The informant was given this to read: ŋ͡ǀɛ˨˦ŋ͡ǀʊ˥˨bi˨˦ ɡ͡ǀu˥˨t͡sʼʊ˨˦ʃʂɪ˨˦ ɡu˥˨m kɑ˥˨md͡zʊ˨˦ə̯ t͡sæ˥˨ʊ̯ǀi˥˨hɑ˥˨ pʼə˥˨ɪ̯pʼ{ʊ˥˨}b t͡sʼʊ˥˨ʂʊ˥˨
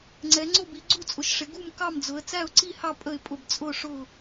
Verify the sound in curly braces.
correct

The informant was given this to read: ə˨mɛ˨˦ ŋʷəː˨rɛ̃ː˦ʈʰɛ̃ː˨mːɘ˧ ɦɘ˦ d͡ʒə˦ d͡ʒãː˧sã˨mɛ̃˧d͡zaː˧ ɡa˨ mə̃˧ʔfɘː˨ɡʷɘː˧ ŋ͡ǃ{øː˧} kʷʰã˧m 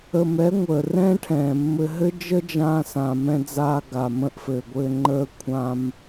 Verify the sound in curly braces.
incorrect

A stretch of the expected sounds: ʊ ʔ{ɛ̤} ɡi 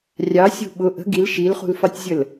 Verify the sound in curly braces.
incorrect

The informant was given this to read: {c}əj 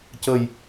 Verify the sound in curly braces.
correct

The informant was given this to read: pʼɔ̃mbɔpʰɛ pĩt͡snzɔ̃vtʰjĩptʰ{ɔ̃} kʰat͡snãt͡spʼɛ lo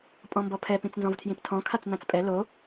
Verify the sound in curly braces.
correct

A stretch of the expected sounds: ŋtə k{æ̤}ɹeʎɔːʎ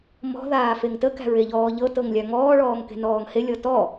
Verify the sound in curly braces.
correct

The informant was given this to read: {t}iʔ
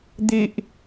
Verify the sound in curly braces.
incorrect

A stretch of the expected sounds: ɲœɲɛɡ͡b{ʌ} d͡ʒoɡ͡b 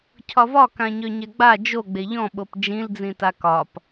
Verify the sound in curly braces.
incorrect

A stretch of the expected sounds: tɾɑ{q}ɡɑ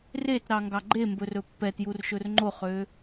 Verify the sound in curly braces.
incorrect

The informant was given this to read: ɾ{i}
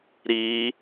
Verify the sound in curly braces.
correct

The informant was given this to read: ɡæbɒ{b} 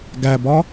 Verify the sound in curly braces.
incorrect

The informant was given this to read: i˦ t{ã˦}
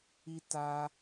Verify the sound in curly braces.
incorrect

